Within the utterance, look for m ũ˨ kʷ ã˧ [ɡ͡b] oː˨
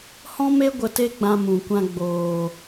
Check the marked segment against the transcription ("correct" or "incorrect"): correct